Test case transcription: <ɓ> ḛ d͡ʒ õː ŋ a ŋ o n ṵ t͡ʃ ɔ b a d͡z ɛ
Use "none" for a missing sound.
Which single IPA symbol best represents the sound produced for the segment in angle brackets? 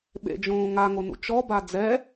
ɓ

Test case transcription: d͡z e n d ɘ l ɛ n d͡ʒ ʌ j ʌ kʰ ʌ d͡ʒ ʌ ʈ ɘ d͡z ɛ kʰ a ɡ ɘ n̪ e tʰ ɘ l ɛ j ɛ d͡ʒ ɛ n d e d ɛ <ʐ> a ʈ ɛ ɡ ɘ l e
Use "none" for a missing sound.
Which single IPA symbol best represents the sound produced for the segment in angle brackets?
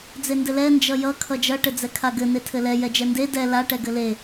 l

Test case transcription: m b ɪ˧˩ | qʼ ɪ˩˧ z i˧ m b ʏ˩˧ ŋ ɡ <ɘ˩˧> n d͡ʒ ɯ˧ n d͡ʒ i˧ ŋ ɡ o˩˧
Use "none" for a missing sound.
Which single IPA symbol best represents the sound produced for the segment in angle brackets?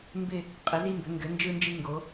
ɘ˩˧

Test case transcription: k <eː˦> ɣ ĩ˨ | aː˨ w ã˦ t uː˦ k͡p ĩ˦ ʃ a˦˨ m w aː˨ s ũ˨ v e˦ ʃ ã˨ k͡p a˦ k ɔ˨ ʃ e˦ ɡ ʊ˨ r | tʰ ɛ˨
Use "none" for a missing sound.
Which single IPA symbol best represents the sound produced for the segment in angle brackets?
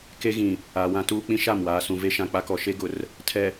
e˦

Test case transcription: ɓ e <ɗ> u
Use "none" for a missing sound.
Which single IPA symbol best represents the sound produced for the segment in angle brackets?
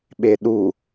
ɗ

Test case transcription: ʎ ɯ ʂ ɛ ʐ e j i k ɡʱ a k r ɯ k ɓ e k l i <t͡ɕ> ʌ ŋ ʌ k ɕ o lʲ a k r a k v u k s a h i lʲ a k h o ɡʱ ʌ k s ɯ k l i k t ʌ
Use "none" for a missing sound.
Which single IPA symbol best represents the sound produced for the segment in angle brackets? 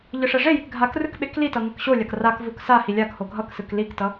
t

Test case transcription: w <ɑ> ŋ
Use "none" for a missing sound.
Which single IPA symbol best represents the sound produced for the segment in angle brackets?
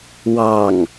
ɑ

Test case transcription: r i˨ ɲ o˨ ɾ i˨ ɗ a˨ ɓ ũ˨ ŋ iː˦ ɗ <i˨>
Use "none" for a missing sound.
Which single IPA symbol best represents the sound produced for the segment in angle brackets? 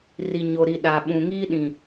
ĩ˨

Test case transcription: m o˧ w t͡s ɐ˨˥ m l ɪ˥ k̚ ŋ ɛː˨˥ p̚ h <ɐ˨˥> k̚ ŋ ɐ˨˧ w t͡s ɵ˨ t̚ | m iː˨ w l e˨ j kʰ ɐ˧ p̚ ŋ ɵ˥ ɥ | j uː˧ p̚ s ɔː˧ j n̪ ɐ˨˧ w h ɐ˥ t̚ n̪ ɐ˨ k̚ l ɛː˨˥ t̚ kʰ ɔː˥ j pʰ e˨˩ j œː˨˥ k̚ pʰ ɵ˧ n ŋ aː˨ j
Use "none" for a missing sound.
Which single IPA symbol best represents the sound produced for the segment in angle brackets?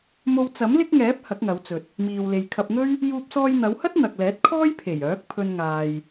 ɐ˨˥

